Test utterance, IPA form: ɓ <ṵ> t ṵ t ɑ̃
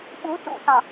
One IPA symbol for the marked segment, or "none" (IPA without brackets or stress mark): u